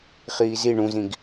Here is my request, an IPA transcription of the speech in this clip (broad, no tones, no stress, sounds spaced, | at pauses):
χ iː z i ɳ ũ z ĩ ɡ